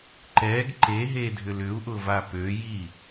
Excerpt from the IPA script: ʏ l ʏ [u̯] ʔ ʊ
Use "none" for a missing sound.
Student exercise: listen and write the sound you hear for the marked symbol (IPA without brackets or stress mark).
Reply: u̯